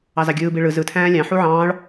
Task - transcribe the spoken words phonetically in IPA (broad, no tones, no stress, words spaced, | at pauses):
ɑzɑɡʲɯːbi ɭɯ zɯtʰæ̃ː lʲɑ̃ħu ʕɑ̃ːɭ